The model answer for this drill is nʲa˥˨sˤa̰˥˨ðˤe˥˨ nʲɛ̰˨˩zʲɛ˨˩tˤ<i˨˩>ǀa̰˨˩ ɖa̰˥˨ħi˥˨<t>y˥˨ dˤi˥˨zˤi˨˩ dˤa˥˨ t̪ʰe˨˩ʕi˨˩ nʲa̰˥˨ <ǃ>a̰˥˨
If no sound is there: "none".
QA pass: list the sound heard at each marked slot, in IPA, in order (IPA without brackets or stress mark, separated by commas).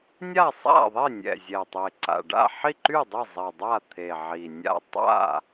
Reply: e˨˩, ǃ, tˤ